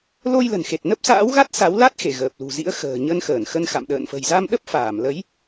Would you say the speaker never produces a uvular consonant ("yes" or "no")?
yes